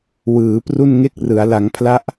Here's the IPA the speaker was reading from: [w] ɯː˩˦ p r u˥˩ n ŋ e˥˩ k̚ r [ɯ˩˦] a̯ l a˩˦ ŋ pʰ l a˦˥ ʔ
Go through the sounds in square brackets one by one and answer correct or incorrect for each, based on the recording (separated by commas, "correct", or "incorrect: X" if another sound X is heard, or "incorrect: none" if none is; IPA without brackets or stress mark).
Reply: correct, correct